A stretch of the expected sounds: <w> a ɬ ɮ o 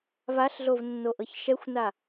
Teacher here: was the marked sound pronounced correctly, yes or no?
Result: no